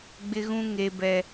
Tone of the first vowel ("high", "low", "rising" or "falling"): high